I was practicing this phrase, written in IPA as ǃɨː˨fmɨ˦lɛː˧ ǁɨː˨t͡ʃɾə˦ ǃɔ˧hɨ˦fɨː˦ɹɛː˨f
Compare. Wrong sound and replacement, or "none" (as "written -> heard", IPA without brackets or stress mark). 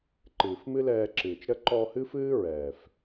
none